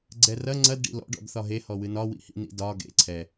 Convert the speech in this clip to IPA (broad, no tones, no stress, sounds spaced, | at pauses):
ɡ͡ǀ ɛ r ɐ ŋ͡ǀ ɐ d ɖ ḭ l ɔ̰ ɖ ɔ̰ d θ ɒ ɦ e h ɔ w ɨ n ɒ w ḭ h ḭ n ḭ d ɒ ɡ ḛ ǀʰ ɛ